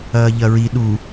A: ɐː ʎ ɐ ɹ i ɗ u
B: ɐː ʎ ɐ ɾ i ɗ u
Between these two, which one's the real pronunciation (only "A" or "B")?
A